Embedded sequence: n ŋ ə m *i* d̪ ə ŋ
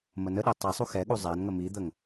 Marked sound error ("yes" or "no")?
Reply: no